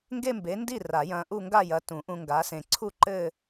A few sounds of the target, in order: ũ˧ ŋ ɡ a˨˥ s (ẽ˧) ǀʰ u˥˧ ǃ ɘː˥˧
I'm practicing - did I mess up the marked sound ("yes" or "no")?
no